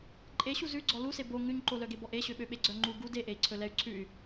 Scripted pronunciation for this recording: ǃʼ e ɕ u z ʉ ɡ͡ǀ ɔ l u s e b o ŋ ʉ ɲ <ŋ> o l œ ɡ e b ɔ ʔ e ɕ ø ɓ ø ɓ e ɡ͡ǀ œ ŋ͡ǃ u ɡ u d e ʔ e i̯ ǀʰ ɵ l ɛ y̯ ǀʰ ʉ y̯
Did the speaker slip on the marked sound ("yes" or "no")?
yes